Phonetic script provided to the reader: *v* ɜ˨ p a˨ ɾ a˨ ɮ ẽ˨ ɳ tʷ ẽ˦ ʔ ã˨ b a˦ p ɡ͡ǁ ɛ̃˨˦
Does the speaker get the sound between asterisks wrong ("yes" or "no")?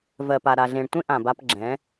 no